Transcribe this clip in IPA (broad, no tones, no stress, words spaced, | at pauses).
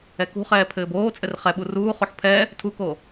ɛkṳχɛː pʰɘːboːt͡sʼɘr χɛɓu ruːχoħ pʰɛ | tʰuko